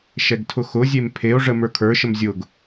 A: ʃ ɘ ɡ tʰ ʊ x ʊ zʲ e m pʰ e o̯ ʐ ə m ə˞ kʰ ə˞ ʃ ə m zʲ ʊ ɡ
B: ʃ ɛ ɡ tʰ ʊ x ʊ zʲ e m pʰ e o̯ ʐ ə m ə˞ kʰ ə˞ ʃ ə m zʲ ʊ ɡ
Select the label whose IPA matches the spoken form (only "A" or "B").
B